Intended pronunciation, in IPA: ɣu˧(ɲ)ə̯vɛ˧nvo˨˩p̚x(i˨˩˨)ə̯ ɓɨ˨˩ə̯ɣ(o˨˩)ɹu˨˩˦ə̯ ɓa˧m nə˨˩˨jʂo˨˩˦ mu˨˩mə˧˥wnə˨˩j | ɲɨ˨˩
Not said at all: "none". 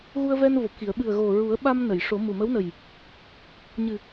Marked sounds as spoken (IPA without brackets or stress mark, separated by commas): none, i˨˩˨, o˨˩